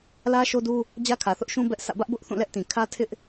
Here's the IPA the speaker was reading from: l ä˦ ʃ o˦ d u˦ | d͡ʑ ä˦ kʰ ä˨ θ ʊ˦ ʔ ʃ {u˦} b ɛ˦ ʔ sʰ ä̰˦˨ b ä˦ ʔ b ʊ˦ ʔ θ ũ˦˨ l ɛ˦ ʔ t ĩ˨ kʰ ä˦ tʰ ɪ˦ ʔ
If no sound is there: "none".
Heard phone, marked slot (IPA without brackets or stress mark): ũ˦